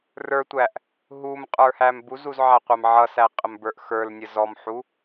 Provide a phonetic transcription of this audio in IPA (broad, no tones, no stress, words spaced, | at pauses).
rə˞tʷæʔ | ɦum qʼə˞hæmbuzuz ʕæqʷæmʕʌsæ qʼəmbə˞ʔxə˞lnʲə zɔmħu